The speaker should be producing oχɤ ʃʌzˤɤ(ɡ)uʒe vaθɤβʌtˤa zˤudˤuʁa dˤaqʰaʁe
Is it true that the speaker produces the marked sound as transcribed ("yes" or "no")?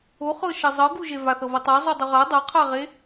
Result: yes